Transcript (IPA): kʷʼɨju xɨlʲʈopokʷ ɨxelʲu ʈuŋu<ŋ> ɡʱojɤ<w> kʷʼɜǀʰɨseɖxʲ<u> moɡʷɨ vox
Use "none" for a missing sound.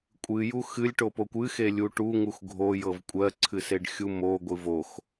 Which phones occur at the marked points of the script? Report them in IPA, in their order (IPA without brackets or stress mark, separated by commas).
x, v, u